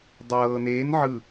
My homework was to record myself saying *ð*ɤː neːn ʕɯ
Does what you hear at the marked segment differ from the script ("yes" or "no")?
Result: yes